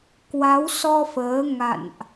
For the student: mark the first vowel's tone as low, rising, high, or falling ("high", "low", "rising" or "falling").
rising